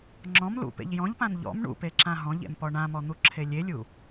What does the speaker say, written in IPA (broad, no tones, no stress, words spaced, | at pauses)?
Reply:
ŋ͡ǁɔ̃m lṵpḛʎ jɔ̃ʎpãn ʎɔ̰m ɳṵpeǁã ɦɔ̃ʎḛmpɔ ɳãmɔn̪uǁʰe lʲelʲu